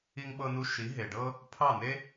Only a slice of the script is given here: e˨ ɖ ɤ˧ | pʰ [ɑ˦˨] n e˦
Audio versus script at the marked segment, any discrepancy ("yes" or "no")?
no